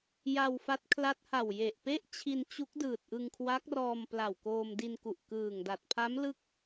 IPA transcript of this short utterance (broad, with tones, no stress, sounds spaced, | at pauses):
j a˧ w f a˦˥ t̚ kʰ l a˦˥ t̚ h a˨˩ w j e˨˩ ʔ p e˥˩ ʔ t͡ɕʰ i˧ n t͡ɕ u˦˥ k̚ d ɯː˨˩ t̚ ʔ ɯ˧ ŋ kʰ w a˦˥ k̚ r ɔː˧ m p l a˨˩ w k oː˧ m d i˧ n k u˨˩ ʔ k ɯː˨˩ ŋ d a˨˩ t̚ pʰ a˦˥ m l ɯ˦˥ k̚